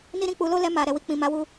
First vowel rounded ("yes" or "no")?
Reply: no